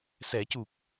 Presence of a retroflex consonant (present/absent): absent